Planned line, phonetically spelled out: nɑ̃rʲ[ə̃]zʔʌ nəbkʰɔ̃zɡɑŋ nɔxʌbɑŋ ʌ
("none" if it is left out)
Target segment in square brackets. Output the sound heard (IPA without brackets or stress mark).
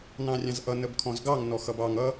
ɑ̃